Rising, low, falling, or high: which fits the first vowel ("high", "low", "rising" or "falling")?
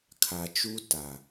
low